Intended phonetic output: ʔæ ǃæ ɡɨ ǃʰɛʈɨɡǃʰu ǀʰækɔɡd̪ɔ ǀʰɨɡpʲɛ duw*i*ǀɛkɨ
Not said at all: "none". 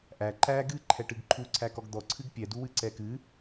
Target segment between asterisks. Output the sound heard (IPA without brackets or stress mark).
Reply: ɨ